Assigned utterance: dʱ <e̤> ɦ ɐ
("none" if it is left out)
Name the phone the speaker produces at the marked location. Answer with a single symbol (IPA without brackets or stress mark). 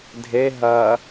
e